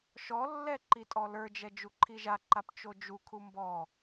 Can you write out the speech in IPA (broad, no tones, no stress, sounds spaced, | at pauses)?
ʃ ɔ lː ɛ ǃ i tʼ ɔ l ə˞ d͡ʒ ɛ d͡ʒ u ǃʰ i ʒ a ǃ a p t͡ʃ o d͡ʒ u kʰ u m b ɔ